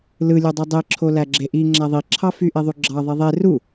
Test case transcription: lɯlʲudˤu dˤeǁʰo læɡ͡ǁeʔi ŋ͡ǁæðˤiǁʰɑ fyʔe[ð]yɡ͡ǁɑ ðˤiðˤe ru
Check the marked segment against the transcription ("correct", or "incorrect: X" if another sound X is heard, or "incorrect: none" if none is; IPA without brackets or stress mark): incorrect: ðˤ